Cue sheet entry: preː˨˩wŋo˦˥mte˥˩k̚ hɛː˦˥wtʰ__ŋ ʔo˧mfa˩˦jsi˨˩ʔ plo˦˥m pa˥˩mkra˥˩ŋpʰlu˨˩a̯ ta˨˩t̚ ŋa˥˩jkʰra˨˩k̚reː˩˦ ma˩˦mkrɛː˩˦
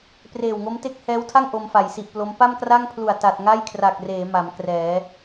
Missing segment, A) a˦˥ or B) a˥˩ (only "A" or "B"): B